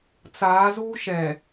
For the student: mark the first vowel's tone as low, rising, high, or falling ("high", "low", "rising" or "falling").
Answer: rising